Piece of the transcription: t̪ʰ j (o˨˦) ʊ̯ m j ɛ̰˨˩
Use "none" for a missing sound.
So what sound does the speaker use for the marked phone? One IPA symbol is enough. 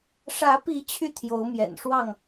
o˨˦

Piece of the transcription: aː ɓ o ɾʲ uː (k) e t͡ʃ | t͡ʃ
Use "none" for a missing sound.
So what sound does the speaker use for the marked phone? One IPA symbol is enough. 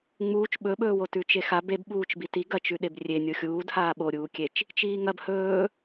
kʲ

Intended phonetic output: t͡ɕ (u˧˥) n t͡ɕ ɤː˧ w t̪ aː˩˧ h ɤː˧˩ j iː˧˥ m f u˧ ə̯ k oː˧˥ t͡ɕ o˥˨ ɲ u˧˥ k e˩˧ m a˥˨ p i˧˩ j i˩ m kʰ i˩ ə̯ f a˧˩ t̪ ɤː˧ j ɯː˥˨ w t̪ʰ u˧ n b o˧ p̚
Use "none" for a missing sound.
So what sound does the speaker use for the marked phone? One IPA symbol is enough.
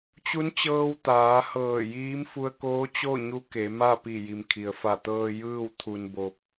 u˧˥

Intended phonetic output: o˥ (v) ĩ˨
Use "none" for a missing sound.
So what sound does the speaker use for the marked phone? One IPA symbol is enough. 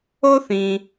θ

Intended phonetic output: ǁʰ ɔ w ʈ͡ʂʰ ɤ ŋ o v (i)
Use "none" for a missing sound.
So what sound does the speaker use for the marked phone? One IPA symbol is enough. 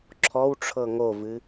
ɨ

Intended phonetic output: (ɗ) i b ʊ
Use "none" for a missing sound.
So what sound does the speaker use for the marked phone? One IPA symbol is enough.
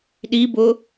ɗ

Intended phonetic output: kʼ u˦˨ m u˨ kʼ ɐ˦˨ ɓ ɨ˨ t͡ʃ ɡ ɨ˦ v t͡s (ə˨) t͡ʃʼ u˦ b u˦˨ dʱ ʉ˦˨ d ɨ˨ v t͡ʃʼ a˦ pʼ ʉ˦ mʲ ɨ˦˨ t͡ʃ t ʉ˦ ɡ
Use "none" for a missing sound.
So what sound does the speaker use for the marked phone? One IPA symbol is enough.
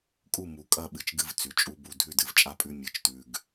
ʉ˨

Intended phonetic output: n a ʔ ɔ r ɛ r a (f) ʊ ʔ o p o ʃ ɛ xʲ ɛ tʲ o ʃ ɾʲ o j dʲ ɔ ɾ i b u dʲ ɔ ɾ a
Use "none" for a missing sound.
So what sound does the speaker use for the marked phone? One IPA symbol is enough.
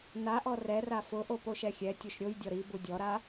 f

